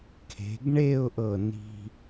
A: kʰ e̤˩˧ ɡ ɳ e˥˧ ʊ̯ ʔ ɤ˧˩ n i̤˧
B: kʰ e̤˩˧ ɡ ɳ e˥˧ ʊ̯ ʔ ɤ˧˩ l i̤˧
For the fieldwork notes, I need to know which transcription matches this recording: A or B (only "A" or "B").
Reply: A